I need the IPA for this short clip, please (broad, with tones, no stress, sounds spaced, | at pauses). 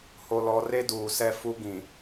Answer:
h o˨ l ɔ˨ r e˦ d uː˨ s ɛ˦ f u˦ ɡ ĩ˨